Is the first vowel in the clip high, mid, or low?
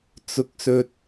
high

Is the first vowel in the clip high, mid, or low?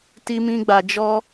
high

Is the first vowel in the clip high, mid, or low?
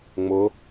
high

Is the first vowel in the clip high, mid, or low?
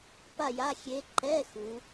low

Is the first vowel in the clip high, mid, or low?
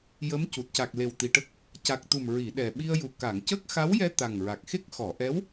mid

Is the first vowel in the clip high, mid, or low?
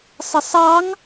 mid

